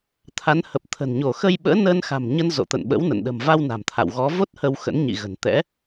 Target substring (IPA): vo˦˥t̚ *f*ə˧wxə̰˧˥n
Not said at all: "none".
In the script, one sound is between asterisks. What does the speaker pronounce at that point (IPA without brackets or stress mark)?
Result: h